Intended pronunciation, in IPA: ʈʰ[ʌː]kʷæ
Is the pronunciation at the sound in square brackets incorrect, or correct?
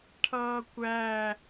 correct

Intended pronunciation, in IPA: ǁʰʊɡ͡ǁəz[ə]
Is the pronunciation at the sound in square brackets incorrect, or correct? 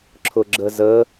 correct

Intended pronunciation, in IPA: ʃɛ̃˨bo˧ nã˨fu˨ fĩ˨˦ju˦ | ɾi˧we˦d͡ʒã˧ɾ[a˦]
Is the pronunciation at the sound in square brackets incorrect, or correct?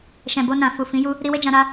correct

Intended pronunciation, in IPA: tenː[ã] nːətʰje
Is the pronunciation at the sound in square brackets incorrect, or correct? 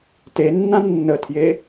correct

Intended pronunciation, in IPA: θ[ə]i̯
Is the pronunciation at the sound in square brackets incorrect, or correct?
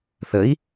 correct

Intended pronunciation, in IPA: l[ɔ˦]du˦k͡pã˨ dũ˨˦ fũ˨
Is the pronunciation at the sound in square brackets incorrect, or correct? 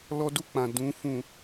correct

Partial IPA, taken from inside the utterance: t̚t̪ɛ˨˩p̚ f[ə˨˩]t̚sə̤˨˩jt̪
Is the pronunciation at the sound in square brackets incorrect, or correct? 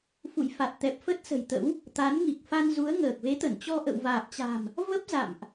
incorrect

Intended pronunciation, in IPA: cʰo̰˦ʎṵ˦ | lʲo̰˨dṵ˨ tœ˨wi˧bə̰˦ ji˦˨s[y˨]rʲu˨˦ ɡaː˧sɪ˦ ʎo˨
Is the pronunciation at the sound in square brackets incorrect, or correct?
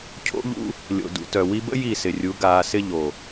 incorrect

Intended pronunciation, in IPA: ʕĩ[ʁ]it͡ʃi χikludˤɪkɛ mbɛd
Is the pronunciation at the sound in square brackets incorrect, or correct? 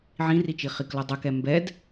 incorrect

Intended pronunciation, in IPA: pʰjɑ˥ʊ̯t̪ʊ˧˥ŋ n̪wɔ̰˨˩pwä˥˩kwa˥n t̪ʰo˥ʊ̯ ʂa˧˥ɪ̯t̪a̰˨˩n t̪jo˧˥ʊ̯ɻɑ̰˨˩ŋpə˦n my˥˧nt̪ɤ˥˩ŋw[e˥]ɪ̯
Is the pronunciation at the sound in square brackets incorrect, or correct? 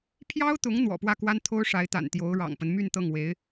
incorrect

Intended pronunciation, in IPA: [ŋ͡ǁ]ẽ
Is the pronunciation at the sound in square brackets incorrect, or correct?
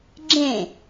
incorrect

